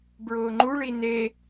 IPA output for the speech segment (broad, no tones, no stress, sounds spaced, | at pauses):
b ɹ ʊː ŋ͡ǃ u ɭ i n̪ e